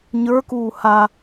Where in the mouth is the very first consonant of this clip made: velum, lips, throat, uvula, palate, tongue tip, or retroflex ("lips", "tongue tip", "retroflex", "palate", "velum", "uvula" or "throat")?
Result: palate